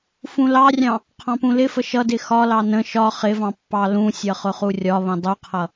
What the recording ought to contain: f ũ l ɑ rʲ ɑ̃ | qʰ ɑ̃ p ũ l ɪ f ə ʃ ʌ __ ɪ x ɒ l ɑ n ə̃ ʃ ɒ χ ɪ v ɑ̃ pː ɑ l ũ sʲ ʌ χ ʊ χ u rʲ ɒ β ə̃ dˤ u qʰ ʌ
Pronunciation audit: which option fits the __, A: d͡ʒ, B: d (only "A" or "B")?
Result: B